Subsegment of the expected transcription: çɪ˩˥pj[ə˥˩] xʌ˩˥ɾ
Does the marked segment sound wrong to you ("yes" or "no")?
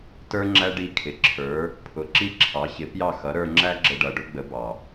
yes